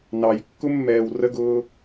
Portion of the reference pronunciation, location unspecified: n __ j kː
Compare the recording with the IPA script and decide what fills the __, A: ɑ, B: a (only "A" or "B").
A